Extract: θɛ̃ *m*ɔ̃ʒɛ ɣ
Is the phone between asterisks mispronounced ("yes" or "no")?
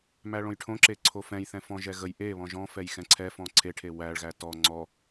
yes